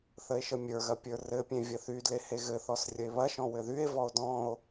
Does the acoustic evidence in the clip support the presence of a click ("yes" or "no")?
no